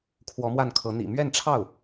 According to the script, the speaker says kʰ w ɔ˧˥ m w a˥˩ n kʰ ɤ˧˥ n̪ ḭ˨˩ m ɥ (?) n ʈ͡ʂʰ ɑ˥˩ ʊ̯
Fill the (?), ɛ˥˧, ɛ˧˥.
ɛ˥˧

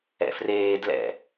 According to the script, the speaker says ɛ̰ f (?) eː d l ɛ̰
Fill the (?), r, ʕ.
r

